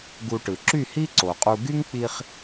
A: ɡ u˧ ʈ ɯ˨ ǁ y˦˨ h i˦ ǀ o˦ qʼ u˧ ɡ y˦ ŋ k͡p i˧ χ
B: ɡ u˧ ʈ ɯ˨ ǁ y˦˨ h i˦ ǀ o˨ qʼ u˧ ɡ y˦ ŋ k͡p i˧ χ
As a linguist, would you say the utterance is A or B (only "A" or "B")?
B